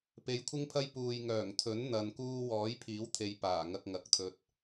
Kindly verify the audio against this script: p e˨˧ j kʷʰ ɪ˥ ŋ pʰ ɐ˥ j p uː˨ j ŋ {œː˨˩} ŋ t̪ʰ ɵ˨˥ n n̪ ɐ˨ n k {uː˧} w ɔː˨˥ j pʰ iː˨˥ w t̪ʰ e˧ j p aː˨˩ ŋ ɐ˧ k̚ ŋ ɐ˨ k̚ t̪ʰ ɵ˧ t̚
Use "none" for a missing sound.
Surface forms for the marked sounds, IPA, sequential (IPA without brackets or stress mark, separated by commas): œː˨˩, uː˧